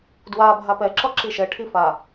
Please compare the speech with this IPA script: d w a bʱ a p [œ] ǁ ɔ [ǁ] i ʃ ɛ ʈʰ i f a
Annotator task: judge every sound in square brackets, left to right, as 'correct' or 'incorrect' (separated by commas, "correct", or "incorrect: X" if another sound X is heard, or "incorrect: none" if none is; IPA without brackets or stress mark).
incorrect: ɛ, correct